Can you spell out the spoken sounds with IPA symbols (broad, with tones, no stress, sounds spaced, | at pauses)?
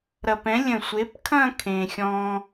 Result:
ɾ ɐ˧ p ɛ̃˨˥ lʲ ə̃˧˩ sʷ e˨˥ p kʰ ɐ̃˥˧ kʰ ẽ˧ xʲ ɔ̃˧